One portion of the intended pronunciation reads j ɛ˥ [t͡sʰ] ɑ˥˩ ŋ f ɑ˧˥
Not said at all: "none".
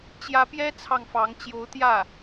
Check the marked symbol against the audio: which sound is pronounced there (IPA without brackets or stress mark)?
t͡sʰ